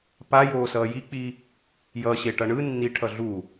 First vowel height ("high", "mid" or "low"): low